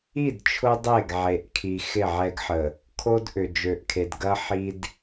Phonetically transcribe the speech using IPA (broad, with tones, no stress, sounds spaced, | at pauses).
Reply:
i˦˨ d t͡ʃʰ ʊ˦ dˤ e˦˨ ɡ ʕ e˨ ʔ kʰ i˨ x ɪ˦˨ ʕ ɛ˦ ɡ ħ ə˨ | kʰ o˦ d ʔ ʏ˨ d͡ʒ ø˨ ʔ kʰ e˨ d ɡ ɐ˦ ħ i˦ d